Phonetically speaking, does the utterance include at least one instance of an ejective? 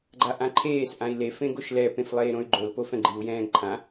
no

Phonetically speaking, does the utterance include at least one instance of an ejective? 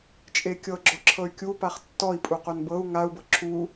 yes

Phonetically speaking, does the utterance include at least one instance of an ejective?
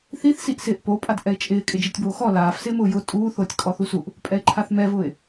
yes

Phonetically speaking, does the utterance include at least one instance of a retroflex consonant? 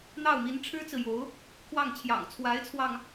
yes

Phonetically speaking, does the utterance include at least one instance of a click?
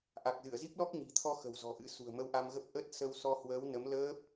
no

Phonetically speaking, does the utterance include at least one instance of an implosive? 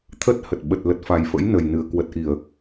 yes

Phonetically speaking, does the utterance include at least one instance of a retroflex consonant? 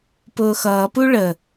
yes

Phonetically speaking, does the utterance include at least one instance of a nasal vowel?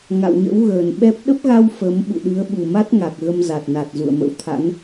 no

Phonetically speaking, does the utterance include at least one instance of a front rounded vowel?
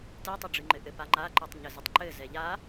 no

